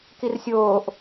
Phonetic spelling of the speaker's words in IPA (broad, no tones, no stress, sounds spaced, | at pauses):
k i r sʲ oː ʔ